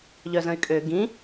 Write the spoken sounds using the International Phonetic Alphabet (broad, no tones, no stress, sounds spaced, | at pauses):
ʎ œ z ə̃ y̯ kʼ ø ɡ ĩ